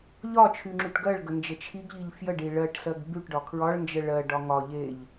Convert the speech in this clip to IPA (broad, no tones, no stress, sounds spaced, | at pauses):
ʎ ɒ t͡ʃʰ y ŋ͡ǁ y ʈ ɡ ɜ ɭ ɡ ə n d͡ʒ ə t͡ʃʰ i ɡ ʎ i ʎ f j ə ɖ i ɭ ɜ ʈ s ɜ ɡ b y ʈ ɖ ɒ kʰ ɹ ɒ ɭ n d͡ʒ ə ɭ ɜ ɖ ɒ ŋ ɒ ʎ e ʎ